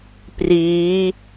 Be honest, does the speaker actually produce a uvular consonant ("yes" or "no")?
no